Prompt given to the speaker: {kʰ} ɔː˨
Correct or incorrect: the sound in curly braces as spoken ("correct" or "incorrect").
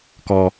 incorrect